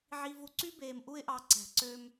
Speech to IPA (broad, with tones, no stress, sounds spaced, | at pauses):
ʕ i˦ v u˧ ǀ y˦ b eː˧ m ʔ u˦ ɪ̯ ʔ ɑ˧ ǀ æ̤˨ ǀ ø˧ m